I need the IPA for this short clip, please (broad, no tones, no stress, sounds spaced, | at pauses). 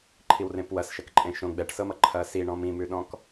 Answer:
ǃʰ i w r ẽ p w ɐ s ʃ ɐ k ǃʼ ẽ ʃ õ ɡ͡b ɛ ʈ s ɤ m ʌ ǃʰ ɐ s i ɳ ɔ̃ m ĩ m ʉ ɗ ɔ̃ k